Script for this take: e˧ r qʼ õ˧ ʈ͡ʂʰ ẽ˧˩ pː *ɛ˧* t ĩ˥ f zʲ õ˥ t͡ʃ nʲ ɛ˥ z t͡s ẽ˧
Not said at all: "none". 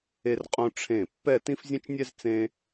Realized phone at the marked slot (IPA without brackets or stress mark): ɛ˥˧